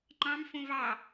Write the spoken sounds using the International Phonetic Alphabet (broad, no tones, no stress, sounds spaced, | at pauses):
ŋ͡ǃ ɑ̃ m f õ v ɑ